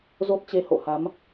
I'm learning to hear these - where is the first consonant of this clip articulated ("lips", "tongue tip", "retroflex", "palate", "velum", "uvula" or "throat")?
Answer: tongue tip